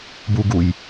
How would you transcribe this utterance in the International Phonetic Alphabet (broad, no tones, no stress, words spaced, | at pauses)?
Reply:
buɡuj